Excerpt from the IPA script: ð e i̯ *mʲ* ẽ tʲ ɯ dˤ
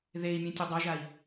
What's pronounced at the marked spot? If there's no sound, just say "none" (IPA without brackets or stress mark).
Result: mʲ